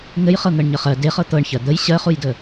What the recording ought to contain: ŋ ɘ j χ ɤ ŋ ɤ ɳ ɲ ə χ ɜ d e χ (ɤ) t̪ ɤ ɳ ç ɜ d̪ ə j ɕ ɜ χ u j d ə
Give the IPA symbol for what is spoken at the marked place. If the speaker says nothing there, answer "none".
ɤ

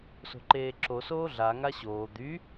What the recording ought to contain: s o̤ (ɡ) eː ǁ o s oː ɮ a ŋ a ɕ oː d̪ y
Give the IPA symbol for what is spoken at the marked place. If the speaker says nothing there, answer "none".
ǃ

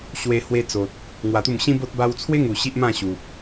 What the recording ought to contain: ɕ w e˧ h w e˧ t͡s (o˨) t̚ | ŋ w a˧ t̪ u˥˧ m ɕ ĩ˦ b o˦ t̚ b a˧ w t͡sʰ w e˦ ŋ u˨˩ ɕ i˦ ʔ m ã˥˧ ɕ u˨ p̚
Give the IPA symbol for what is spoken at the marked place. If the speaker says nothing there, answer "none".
o˨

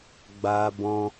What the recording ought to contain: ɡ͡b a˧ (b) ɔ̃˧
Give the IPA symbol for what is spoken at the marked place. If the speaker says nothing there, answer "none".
b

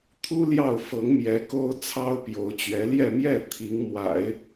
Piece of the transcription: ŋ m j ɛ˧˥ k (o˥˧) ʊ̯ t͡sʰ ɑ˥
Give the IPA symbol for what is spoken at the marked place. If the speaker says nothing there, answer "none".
o˥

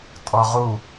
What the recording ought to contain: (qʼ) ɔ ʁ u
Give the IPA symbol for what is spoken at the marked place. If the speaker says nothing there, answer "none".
tʼ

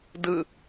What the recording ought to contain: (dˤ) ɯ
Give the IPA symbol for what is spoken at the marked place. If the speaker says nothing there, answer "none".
d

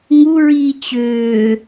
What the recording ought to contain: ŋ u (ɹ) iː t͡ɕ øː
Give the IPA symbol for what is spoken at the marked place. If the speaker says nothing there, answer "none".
ɹ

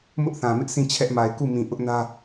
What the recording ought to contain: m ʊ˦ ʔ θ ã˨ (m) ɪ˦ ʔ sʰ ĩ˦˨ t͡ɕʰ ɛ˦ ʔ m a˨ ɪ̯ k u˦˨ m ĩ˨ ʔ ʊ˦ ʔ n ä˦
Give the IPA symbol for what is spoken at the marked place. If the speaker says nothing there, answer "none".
m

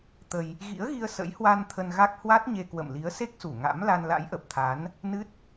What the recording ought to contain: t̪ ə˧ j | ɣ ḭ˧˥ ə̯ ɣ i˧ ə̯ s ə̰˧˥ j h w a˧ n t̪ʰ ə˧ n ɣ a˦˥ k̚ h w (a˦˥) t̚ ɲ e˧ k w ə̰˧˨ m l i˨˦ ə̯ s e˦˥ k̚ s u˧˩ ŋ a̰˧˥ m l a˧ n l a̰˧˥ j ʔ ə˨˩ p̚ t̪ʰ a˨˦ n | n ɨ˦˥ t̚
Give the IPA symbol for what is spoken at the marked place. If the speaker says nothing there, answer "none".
a˦˥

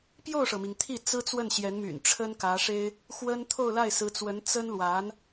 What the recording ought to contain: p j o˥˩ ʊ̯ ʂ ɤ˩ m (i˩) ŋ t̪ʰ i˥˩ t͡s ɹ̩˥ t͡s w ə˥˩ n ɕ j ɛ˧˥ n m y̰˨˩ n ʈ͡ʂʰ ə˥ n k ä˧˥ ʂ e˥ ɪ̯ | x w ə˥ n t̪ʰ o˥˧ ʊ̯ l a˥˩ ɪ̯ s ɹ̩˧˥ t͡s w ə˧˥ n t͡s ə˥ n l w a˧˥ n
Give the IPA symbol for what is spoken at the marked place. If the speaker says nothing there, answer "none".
i˩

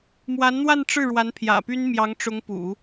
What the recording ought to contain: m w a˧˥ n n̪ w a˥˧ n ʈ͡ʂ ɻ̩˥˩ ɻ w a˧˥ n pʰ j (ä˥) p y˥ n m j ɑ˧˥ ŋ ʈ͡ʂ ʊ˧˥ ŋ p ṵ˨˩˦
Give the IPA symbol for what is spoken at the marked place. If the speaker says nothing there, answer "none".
ä̰˨˩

